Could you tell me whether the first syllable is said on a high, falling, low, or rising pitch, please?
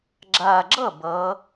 low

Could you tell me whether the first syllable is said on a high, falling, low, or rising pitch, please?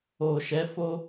low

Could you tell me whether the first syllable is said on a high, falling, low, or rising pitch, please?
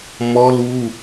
high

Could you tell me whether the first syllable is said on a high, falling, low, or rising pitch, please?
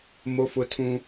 high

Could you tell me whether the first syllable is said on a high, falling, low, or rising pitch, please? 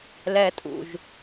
high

